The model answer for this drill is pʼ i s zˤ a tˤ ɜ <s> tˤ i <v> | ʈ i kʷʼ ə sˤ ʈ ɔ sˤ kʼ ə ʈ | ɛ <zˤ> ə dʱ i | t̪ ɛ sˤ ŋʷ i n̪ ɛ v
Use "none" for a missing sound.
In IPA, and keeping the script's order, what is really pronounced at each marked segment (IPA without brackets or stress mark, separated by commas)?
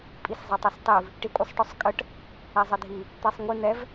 s, v, zˤ